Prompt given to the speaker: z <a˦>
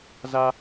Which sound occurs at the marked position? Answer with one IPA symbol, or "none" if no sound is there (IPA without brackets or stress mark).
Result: a˦